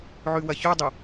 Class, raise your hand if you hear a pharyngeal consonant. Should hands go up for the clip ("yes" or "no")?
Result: yes